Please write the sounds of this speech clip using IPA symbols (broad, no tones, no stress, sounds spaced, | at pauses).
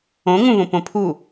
õ ŋ ũ v õ p õ pʰ u